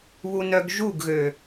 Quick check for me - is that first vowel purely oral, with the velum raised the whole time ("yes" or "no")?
yes